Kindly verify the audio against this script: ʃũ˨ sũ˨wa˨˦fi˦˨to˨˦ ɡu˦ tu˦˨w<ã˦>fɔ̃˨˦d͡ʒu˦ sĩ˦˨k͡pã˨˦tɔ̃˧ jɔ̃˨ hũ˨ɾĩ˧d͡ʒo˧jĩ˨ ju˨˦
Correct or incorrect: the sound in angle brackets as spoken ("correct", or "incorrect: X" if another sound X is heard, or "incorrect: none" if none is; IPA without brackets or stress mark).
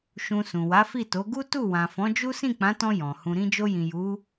incorrect: ã˨